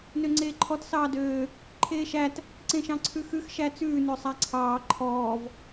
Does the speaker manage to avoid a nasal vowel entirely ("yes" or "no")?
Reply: no